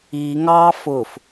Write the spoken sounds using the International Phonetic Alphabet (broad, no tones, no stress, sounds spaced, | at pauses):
i ŋ ɑː f ʊ f